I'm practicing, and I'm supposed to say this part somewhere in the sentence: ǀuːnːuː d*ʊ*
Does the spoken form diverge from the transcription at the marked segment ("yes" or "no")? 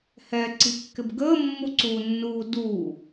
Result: yes